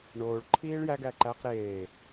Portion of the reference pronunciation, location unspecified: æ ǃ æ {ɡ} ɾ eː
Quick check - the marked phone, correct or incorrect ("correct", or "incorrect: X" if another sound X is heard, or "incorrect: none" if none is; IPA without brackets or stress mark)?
incorrect: q